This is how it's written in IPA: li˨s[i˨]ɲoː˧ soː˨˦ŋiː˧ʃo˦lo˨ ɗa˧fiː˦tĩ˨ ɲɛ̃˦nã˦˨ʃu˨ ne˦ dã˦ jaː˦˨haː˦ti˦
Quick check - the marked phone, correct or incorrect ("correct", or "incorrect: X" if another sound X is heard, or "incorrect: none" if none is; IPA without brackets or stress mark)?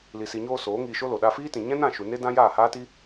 correct